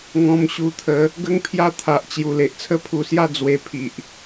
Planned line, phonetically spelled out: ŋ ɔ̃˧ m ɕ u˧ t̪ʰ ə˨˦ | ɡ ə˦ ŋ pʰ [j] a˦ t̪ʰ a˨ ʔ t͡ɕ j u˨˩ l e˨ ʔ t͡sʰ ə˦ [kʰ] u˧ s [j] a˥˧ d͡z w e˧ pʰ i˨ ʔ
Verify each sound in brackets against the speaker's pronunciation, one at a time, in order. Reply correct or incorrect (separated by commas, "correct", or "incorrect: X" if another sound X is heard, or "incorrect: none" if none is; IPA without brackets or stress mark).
correct, incorrect: pʰ, correct